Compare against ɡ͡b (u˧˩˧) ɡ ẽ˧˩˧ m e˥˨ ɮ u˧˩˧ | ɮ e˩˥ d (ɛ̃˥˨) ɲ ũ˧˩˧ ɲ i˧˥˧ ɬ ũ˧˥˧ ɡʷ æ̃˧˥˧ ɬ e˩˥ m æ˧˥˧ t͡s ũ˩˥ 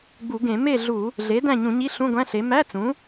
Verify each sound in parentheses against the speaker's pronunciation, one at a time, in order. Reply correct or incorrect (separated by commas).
correct, incorrect